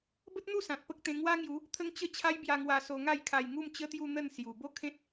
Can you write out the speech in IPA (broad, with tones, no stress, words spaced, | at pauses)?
bə˦t̚n̪u˥˧ sã˨t̚pə˦k̚t̪ẽ˧ ŋwa˦ŋju˨˦ | t̪ʰə˦ŋt͡ɕə˥˧ t͡ɕʰa˦jbja˧ ŋwa˧so˧ŋa˥˧jkʰa˧j ŋu˥˧mt͡ɕə˦t̪ju˥˧ n̪ə˥˧n sju˨˩ bo˥˧kʰẽ˦t̚